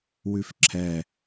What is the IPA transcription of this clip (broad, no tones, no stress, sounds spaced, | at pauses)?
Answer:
w ʉ f ǁʰ ɛ